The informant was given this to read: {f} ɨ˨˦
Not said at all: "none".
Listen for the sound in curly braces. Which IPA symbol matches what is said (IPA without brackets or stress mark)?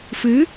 f